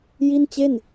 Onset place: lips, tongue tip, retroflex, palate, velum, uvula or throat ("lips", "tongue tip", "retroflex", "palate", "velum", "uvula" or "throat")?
palate